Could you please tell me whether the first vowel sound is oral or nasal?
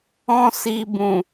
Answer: nasal